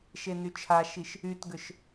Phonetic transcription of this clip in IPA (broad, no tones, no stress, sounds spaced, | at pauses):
ʃ e n y t͡ʃʰ a ʃ i ʃ | y t ɡ ʏ ʃ